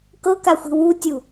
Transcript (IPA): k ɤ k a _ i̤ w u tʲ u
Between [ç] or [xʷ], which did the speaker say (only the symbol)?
xʷ